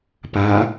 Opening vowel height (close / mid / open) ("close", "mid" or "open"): open